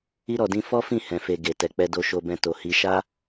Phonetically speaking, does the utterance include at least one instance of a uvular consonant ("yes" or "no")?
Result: no